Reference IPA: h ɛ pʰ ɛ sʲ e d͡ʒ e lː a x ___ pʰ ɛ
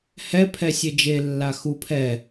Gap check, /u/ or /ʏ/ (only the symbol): u